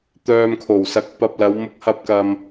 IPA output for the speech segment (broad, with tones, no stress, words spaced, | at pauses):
t̪œː˧mkʰo˨˩w sɐ˨˥k̚pɐ˨p̚lɐ˨˧w mʊ˧k̚hɐ˧p̚kɐ˨m